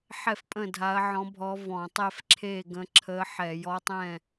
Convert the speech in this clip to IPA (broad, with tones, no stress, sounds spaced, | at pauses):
ħ ɛ˥˨ f pʼ ə̃˥˨ dʱ a˧˥ ɐ̯ ʕ ɔ̃˧˥ bʱ ɔ˧˥ v ɔ̃˧˩˧ tˤ ɛ˥˨ f ǁʰ e˥˨ ɡ ə̃˧˥ ǁʰ ə˧˥ ħ ɛ˧˩˧ j ɔ˧˥ tˤ ɛ̃˥˨